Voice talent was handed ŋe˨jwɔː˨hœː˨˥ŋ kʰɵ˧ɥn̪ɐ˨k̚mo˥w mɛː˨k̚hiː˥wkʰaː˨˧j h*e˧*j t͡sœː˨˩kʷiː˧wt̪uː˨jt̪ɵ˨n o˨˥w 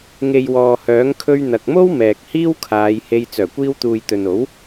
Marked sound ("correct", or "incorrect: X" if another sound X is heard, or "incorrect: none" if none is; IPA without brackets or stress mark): correct